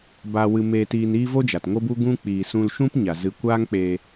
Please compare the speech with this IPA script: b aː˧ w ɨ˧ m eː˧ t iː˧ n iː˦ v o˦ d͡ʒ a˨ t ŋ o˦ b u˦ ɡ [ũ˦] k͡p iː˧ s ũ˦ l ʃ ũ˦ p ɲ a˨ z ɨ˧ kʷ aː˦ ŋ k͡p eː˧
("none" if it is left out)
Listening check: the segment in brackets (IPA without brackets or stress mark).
ũ˦